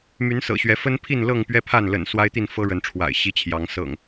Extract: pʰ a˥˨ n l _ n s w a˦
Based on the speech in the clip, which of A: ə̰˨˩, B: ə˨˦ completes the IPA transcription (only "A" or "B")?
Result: A